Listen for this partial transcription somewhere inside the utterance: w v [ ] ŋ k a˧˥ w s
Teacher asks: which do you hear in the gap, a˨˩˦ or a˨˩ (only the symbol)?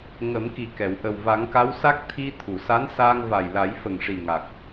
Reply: a˨˩˦